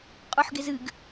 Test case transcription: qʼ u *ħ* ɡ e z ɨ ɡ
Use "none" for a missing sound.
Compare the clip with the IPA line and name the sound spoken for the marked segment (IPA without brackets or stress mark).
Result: ħ